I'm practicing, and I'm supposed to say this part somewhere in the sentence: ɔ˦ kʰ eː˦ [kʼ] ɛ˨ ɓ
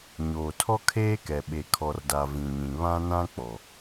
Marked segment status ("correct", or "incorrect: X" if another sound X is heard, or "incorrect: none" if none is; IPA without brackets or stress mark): incorrect: k